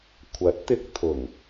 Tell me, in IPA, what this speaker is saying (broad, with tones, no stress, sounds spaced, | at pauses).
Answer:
kʷʰ ɐ˨˥ t̚ t̪ ɪ˧ k̚ t̪ʰ ʊ˨˩ ŋ